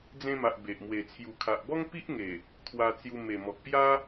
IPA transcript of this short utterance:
d͡z ẽ˧ m a˨ ʔ b e˨ ʔ m w e˨˩ t͡sʰ j u˨˩ kʰ a˨ ʔ b ɔ˦ ŋ p i˦ ʔ ŋ e˨˩ | t̪ʰ w a˧ t͡s j u˧ m e˨˩ m ɔ˨ k̚ p j a˦

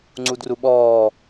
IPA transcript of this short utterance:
ŋ͡ǀ u d r u ɓ ɔː

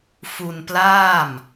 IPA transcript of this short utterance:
f u˧ n p l aː˥˩ m

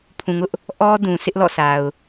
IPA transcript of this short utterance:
pʰ ũ˨ ŋ ʊ˦ ʔ | ʔ ɔ˦ d ũ˨ sʰ ɪ˦ ʔ l ɔ̰˦˨ sʰ a˨ ʊ̯

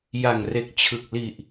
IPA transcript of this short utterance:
j a˨˩ ŋ r e˨˩ k̚ t͡ɕʰ ɯ˨˩ k̚ l i˨˩ ʔ

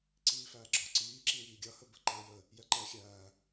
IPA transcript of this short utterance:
ǀ iː f æː ɡ͡ǁ ɒ ǀ iː ǁ i ŋ iː ɡʲ ʌ h ə b ə ǃ əː j ə | j ɛ ǃ ɛː xʲ æː

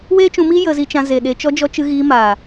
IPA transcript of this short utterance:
w eː˦ t͡ʃ ũ˧ m i˦ j ə˧ z i˧ t͡ʃ ã˧ z e˨ ɗ e˧ t͡ʃ ɔ˧ d͡ʒ ɔ˧ t͡ʃ ɨ˧ ɣ iː˧ m aː˨

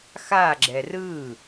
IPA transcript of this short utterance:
x a ɡ͡ǁ ɛ r ɯ

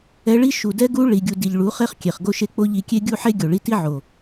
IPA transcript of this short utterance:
ɛ˧ ɭ i˦ ʃ u˨ d ɛ˦ ɡ u˦ ɭ i˨ ɡʲ u˨ d i˨ ʎ ɭ u˨˦ χ e˦ χ kʲ e˨ χ ɡ o˧ ʃ e˧ k͡p o˧ ʎ i˧ kʲ e˦ ɡʲ u˦ ħ e˦ ɡʲ o˨ ɭ i˧ t i˦ ʕ o˨

